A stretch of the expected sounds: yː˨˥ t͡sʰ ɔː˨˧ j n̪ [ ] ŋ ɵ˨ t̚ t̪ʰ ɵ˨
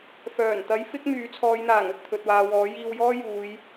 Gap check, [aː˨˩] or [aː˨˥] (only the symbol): aː˨˩